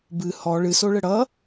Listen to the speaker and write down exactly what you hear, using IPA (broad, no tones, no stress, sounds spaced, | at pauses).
b ɨ h ɔ ɭ ɨ s o ɭ ə ɽ ʌ